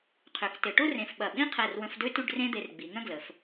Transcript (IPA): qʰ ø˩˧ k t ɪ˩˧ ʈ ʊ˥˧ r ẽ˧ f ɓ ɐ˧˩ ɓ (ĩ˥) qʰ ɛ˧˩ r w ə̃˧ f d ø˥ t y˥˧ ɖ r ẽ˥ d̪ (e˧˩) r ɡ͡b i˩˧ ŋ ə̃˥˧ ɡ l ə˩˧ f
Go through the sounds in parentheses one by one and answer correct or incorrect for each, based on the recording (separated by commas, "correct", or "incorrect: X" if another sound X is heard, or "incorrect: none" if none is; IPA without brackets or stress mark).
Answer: correct, incorrect: e˧